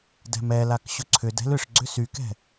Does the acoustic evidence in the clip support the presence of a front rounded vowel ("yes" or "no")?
yes